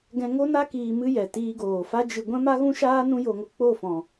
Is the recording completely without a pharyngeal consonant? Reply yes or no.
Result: yes